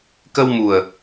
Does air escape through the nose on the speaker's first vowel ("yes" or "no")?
no